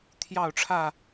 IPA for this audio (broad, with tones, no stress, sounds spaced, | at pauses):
t̪ʰ j ɑ˥˨ ʊ̯ ʈ͡ʂʰ ä˥˨